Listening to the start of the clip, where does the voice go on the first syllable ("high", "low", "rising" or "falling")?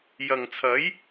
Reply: low